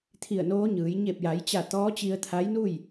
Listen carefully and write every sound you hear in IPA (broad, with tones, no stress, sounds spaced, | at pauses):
t̪ʰ i˧˩ ə̯ n oː˧˥ ɲ ɯː˩˧ j ɲ e˧˩ p̚ j a˩˧ j t͡ɕ a˧˩ t̪ ɔː˧˥ t͡ɕ i˧ ə̯ t̪ʰ a˧˥ j n u˥˨ j